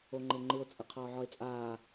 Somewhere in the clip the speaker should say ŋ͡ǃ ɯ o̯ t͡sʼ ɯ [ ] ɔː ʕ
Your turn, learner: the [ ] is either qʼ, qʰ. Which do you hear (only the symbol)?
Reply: qʰ